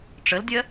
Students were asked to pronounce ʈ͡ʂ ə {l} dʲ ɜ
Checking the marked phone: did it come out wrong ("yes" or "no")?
no